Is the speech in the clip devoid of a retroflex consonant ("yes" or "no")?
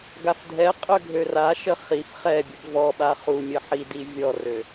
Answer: yes